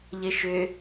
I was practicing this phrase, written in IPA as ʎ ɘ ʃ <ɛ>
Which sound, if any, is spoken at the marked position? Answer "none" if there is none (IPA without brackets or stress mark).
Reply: ʏ